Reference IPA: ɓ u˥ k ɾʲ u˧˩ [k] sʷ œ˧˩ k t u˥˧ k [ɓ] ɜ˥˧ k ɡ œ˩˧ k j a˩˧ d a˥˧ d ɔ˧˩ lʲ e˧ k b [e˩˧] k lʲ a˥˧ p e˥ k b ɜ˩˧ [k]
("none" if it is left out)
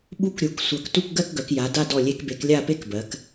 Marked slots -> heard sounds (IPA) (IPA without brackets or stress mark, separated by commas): k, ɡ, e˩˧, k